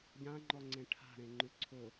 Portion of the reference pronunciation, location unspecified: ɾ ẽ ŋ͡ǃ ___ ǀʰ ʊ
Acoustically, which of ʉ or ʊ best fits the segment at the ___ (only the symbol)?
ʉ